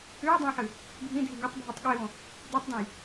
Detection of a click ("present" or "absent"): absent